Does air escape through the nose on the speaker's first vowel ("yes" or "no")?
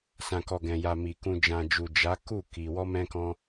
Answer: yes